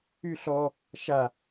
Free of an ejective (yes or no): yes